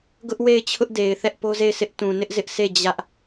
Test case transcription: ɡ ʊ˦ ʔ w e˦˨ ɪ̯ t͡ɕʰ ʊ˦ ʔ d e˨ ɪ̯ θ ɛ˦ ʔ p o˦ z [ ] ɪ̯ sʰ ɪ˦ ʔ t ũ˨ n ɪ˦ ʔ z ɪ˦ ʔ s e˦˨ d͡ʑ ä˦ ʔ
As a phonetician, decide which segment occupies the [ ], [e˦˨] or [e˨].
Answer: e˦˨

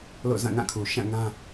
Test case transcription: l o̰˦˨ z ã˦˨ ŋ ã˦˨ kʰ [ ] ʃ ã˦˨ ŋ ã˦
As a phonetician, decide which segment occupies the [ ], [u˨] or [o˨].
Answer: u˨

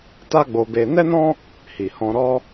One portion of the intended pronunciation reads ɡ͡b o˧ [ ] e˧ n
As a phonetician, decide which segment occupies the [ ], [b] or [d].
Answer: b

